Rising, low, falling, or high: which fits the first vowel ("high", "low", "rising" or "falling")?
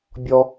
high